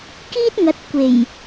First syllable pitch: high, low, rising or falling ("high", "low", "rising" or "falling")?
high